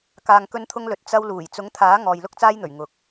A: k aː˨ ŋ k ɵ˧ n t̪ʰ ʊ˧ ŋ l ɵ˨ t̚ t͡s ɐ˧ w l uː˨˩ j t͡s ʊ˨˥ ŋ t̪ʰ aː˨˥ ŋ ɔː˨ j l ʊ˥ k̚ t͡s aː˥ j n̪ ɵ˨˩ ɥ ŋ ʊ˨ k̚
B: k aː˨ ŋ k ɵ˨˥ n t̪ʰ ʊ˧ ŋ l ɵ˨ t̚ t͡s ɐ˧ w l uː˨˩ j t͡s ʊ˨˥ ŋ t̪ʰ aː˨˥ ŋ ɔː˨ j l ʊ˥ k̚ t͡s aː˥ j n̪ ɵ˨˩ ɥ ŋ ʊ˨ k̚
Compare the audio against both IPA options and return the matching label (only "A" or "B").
A